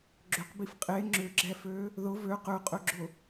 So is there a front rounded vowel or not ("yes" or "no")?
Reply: yes